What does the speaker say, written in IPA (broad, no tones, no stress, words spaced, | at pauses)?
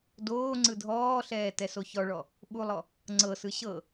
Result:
doː ŋ͡ǀɯdʱɔːɬɛː tɛsoçɔɭɔ | ɓulˠɔ | ŋ͡ǀɤsɯ ɕɤ